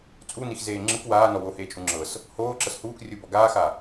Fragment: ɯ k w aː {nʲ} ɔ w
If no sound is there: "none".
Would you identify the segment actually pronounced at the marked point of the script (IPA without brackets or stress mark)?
n